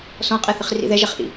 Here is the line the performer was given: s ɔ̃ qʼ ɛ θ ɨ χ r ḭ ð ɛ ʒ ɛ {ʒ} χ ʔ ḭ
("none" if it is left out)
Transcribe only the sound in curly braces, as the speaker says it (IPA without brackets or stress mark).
none